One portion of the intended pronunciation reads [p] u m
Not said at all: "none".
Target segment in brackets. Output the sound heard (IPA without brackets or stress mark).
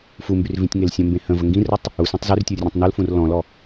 f